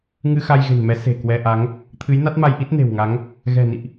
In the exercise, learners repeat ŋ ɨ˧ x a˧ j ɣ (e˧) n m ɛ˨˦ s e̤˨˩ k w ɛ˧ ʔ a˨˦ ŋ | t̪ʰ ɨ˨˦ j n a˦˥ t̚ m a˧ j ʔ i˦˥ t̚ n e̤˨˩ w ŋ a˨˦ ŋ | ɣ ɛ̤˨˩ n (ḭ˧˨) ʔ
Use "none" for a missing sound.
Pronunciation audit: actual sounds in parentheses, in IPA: e̤˨˩, ḭ˧˨

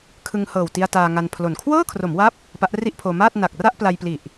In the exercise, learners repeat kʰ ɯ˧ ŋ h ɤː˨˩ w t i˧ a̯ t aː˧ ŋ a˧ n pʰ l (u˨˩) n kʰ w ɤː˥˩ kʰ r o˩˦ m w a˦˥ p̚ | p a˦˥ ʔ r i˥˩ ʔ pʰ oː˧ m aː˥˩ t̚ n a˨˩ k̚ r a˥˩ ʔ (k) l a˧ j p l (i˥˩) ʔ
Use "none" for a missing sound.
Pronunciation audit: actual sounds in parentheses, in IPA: o˨˩, p, i˨˩

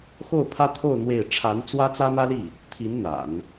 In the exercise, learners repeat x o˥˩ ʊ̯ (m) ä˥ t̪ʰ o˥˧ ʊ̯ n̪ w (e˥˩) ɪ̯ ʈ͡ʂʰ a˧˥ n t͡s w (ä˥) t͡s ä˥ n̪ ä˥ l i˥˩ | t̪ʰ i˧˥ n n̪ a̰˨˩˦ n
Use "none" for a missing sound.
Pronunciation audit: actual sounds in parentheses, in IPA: pʰ, e˥˩, ä˥

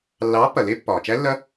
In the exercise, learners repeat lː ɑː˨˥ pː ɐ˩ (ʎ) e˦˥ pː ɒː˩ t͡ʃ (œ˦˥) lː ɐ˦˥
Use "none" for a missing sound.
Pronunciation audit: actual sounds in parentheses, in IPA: l, æ˦˥

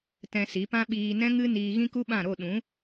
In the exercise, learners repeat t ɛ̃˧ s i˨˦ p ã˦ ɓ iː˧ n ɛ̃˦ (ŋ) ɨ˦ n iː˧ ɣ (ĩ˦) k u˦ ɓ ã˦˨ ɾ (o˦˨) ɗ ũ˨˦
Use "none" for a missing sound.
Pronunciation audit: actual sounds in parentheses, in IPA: ŋ, ĩ˦, o˦˨

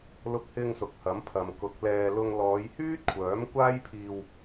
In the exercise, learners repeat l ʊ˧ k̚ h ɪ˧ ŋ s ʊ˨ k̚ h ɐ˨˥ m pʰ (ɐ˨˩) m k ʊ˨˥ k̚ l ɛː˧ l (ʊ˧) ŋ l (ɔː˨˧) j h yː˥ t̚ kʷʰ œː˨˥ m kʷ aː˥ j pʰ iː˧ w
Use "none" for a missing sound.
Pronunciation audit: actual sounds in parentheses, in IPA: ɐ˨, ʊ˧, ɔː˨˧

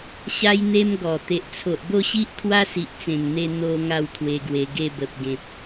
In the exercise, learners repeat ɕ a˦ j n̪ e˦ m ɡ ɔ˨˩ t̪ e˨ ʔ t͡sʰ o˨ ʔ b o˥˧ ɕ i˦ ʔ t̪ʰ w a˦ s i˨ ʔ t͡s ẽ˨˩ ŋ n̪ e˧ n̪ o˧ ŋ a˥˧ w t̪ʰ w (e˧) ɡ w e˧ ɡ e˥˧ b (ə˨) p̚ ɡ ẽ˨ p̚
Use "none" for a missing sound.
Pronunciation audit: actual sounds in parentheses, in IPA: e˧, ə˨

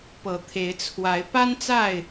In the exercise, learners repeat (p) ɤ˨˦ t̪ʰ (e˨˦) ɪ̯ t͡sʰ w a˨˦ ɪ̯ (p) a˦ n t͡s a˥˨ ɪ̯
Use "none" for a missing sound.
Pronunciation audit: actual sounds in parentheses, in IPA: p, e˨˦, p

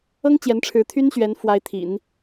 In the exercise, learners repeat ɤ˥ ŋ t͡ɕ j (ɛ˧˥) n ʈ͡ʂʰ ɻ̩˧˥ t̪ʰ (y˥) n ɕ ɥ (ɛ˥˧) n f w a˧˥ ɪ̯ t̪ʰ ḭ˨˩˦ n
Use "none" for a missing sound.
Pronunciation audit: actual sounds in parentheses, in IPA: ɛ˧˥, y˥, ɛ˧˥

